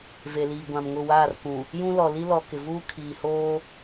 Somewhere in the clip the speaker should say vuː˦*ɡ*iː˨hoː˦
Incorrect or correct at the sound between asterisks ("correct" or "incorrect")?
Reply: incorrect